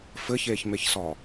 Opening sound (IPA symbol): f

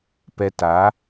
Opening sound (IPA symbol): p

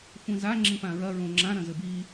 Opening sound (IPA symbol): xʷ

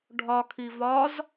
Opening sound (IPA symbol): ɖʱ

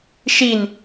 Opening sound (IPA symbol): ʃ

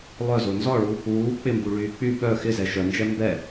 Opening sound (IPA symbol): lˠ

